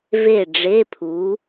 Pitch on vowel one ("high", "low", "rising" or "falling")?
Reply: falling